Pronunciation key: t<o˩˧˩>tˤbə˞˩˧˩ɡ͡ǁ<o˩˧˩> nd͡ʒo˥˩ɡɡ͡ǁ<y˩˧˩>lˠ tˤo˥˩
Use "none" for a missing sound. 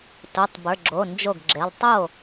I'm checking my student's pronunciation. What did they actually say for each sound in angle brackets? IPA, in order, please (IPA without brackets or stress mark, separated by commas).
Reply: o˩˧˩, o˩˧˩, e˩˧˩